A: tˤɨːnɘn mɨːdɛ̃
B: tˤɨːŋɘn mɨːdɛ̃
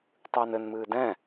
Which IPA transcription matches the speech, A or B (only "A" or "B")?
A